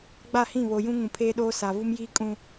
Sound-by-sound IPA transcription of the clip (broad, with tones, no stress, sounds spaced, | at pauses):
ɡ͡b a˦˨ h ĩ˦˨ β o˨ j ũ˦ ŋ ũ˨ pʰ eː˦ ɗ oː˦ s a˨ v u˦ m j iː˦ kʼ ũ˨